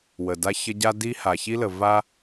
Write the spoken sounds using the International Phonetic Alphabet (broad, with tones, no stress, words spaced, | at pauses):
wə˩ da˥çə˥ ɟa˥di˥ ha˩çi˥lə˩ va˥